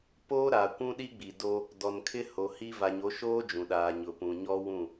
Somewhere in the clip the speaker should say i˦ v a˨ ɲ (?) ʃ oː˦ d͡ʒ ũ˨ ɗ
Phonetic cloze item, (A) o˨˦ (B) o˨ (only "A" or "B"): A